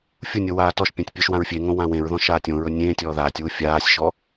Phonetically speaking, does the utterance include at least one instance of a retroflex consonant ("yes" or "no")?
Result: no